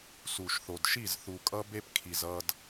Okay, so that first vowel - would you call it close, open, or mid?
close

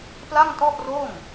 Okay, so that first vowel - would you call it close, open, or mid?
open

